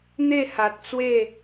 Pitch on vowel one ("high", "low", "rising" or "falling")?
falling